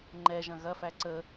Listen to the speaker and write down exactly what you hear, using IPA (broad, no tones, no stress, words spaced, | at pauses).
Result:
ŋ͡ǃɛʒɐ̃ ɣɐfæ ǀə